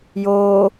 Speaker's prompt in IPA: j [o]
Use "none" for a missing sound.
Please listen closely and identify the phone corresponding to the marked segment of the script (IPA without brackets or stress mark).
oː